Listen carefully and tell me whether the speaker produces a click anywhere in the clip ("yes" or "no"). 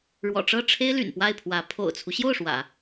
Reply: no